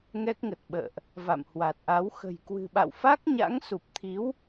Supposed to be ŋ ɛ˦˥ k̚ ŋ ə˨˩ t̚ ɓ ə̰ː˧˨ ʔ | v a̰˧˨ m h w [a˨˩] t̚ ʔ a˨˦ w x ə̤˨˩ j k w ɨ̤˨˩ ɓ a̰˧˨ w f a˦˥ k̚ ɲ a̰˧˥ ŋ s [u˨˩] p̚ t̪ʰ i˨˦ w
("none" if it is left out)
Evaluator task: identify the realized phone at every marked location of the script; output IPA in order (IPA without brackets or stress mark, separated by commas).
a˨˩, u˨˩